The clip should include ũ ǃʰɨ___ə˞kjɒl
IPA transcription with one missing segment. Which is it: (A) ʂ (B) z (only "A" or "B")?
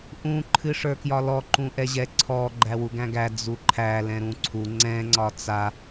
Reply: A